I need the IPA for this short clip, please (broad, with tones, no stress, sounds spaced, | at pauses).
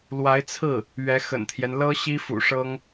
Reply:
l w a˧˥ ɪ̯ t͡sʰ ɹ̩˥˩ | ɥ ɛ˧˥ x ə̰˨˩ n t̪ʰ j ɛ˦ n l ɤ˥ ɕ i˥ f ṵ˨˩ ʂ ɤ˥ ŋ